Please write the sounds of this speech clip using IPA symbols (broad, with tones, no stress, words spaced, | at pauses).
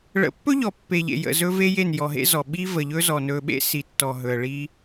ɭə̰˨˦pːɵ˦ʎɔ˨ pːe˨ʎḛ˨jə̰˨ zɵ˦ve˦je˦˨n jɔ˨ɦḛ˦zɔ˨ ɓi˦və˨ʎɵ˦zɔ˨ nɵ˨ɓḛ˦ si˨tːɔ˨ɦɵ˨ə̯ ɭi˦